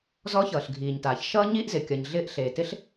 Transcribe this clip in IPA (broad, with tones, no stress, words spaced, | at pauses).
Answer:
zɔ˧˥çʌː˩ɬɡʱiː˩ɲtaː˩ç ʃʌː˥ɲiː˥ʔzɪ˩ kʲʌ˩ɲɮɪː˧ʔ ɬeː˩tɪ˧˥ɬ